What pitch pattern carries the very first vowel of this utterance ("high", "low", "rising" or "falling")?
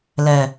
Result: low